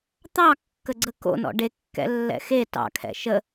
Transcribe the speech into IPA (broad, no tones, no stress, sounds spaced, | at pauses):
t̪ ɑ kː ə ɡ͡ǀ ə k o̰ n ɔ̰ ɖ e kː ɛ̰ lː ɛ̰ x e t ɑ̰ kʰ ɛ̰ ʃ ə